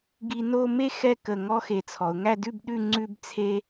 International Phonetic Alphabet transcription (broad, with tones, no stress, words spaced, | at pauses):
ɡi˧no˥˧me˥ xɛ˥˧kə˧˩ ŋɔ˥xe˧˩t͡sʰɔ˩˧ʊ̯ ŋæ˥˧dʉ˥˧bɗʉ˥˧ ŋ͡ǀʉ˥bt͡sʰe˥